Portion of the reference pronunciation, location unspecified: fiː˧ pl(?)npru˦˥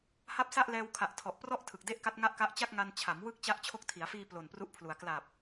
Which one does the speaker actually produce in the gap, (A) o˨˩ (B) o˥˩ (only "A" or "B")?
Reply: A